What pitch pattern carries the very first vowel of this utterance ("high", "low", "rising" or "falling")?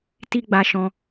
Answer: high